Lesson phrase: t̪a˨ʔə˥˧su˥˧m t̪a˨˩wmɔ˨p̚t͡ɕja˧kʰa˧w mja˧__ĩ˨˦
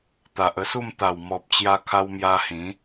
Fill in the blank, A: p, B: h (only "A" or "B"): B